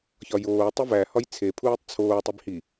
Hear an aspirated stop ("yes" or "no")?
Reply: yes